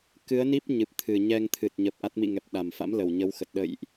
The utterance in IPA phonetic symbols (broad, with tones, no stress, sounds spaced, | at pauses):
k ɨ˨˦ ə̯ n i˦˥ p̚ ɲ ɨ˨˩ p̚ t̪ʰ ɨ˨˩ ɲ ɛ˧ ŋ t̪ʰ ɨ˨˩ t̚ ɲ ə˨˩ p̚ ʔ a˦˥ t̚ m ḭ˧˨ ŋ ɛ˨˩ p̚ ɗ a˨˩ m f a̰˧˥ m l ə˨˩ w ɲ ə˨˦ w x ə˨˩ t̚ ɗ ə̰˧˨ j ʔ